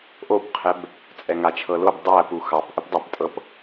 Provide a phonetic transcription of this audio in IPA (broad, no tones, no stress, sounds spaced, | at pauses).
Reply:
ʔ o b qʰ ɛ b | t͡sʼ ɛ ŋ a t͡ʃʰ ɤ l o b dˤ æ p u x ɑ p ʔ ə p dˤ æ p tʼ ɤ p